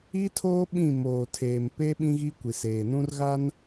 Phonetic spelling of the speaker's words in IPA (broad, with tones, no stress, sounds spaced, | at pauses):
i˦ tʰ oː˦ ɓ ĩ˦˨ m oː˨ tʰ eː˨ m p e˦ ɓ ĩ˦ ɣ i˦ kʷ i˨ s eː˨ n ũ˦ r ɣ a˦ n